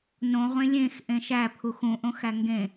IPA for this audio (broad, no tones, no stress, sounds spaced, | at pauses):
n õ ʁʷ ẽ lʲ ẽ x ʔ ẽ ʃ æ pʰ u x ũ ʔ õ x æ ŋ ɡ ẽ